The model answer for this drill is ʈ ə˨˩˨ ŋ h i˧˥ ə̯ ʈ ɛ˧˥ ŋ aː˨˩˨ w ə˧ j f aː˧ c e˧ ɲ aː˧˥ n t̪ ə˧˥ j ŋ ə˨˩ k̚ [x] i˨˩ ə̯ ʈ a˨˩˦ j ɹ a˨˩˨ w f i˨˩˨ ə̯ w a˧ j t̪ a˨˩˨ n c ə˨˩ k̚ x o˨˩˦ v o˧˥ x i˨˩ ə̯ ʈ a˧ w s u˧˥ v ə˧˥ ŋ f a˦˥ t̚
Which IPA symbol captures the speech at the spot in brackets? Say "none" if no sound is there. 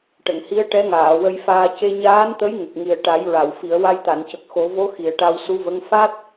ŋ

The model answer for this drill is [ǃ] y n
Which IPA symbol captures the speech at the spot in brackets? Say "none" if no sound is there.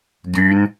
d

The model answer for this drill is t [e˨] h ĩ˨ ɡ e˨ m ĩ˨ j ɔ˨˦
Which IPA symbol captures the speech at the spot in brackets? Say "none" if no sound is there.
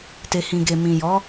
e˨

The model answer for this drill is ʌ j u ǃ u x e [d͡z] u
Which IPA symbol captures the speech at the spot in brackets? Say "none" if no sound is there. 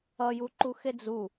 d͡z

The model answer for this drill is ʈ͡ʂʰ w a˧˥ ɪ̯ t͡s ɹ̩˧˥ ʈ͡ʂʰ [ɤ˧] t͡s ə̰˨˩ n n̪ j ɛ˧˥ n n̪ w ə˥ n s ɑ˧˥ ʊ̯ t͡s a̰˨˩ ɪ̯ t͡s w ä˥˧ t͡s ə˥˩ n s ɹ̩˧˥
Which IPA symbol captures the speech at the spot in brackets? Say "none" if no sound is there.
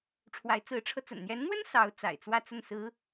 ɤ˧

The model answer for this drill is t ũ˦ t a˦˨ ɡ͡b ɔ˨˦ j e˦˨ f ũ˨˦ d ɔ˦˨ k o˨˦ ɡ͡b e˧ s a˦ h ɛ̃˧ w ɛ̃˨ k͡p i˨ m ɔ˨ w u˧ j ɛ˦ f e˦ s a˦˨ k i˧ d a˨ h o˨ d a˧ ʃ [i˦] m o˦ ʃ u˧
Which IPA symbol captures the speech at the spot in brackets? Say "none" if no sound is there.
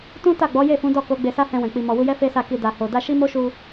i˦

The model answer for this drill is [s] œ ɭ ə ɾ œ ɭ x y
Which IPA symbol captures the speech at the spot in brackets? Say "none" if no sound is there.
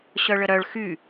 ɕ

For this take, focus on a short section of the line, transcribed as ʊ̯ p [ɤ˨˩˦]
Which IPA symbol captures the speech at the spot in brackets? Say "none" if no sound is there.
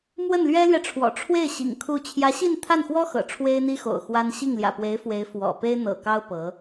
ɤ˧˥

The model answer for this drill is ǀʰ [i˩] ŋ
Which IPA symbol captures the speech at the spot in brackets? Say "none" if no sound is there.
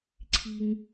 i˩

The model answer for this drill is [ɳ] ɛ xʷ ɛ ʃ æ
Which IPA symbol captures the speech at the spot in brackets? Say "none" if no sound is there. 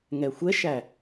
ŋ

